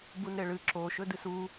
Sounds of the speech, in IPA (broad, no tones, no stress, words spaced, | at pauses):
bunɾeɭɨ ǁo ʃɵdɨsu